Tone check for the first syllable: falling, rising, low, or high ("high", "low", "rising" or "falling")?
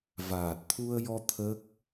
low